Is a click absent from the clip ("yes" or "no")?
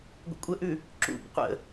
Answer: no